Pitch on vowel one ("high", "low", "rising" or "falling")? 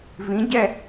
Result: rising